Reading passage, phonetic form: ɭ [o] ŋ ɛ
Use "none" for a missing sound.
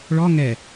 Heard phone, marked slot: ɔ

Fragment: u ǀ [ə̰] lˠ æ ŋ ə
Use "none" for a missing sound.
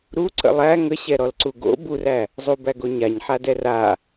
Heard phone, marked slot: ə̰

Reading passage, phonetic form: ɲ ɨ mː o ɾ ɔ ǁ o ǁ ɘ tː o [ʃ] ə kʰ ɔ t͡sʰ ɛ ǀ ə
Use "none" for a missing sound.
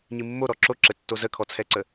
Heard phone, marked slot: z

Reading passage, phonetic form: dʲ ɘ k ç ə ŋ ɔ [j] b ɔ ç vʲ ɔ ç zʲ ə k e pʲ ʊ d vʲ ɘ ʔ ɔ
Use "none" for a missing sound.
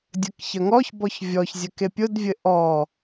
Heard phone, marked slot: ç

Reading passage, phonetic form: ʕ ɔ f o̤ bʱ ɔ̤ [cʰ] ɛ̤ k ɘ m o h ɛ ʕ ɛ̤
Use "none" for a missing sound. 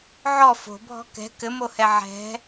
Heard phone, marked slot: k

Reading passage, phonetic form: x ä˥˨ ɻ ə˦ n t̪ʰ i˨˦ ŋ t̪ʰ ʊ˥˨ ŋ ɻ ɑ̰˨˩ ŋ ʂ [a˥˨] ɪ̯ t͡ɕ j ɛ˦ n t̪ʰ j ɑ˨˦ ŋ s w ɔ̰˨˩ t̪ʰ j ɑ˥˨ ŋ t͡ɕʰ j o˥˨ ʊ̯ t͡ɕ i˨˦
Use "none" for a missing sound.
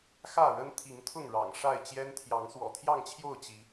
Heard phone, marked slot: a˥˨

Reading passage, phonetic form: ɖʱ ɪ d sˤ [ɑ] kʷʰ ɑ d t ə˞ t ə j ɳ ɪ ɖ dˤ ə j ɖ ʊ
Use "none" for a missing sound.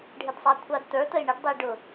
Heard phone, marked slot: ɑ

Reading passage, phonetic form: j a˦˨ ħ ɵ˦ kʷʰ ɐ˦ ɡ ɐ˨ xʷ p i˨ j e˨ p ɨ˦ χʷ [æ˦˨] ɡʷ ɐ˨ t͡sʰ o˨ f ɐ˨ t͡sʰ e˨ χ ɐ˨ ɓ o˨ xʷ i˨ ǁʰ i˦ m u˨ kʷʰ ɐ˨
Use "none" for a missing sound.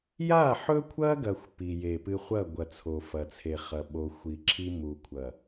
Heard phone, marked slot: ɐ˦˨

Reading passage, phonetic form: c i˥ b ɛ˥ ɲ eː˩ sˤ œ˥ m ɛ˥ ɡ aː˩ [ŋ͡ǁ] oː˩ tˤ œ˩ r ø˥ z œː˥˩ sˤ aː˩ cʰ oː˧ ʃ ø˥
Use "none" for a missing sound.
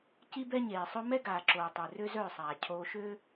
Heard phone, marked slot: ǁ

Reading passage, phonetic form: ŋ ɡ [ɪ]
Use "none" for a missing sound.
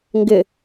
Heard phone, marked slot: ɪ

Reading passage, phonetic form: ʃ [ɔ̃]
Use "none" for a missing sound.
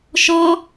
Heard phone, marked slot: ɔ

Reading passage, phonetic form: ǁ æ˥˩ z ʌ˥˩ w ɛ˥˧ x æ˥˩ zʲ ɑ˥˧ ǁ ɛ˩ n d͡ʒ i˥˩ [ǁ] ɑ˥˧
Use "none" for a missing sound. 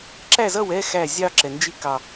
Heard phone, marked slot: k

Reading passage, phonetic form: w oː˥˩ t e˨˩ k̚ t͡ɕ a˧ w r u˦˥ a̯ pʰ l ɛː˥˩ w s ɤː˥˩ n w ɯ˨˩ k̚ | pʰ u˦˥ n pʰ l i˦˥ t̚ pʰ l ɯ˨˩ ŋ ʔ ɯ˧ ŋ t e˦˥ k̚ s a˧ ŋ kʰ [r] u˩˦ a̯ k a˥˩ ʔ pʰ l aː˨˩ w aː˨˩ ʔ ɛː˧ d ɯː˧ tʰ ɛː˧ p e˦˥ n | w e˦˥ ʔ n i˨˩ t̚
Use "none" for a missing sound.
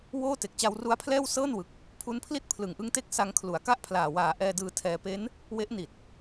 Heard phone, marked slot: l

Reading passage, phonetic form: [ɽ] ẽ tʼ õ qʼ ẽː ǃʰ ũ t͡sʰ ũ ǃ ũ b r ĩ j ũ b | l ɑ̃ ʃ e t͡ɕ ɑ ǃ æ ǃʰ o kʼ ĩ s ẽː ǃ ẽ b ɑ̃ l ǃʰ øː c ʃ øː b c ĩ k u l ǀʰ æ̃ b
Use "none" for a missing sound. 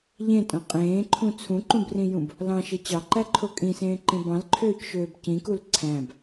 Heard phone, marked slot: ʎ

